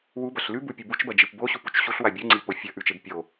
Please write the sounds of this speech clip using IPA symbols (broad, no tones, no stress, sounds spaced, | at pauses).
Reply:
w u b ɐ ɬ l ʉ b u pʲ ɨ b u t͡ʃ b ɐ d͡ʒ ɨ p b o ɕ u p u t͡ʃ ɕ u ɬ w a bʲ u ŋ͡ǀ i p o fʲ ɐ ʔ ʉ t͡ʃ e b pʲ o